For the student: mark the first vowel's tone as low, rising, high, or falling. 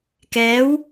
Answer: rising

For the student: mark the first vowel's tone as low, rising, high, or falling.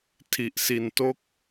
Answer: low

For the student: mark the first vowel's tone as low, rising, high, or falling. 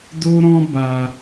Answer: high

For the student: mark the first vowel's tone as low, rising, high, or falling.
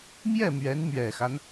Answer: falling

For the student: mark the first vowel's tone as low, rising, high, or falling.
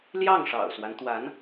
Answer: falling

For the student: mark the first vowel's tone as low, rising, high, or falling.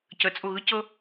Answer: rising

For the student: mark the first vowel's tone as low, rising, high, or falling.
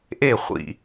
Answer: falling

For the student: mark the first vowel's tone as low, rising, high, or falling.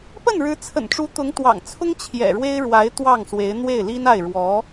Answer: falling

